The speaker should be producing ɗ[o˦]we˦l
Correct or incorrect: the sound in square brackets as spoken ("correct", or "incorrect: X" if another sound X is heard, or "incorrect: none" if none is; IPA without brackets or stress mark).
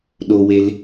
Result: correct